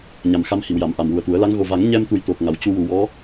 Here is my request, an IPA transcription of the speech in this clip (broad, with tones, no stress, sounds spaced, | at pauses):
ɲ a˨˩ m x a˧ m h i˨˩˨ w j a˨˩˨ m ʔ a˨˩ m w u˨˩ ə̯ t̪ u˨˩˦ ə̯ l a˧˥ ŋ ɣ o˨˩ v a˨˩˦ ŋ ɲ ɛ˧ m t̪ u˨˩ j t̪ o˨˩ k̚ ŋ a˨˩ w c u˧ w u˨˩˨ w ɔ˧˥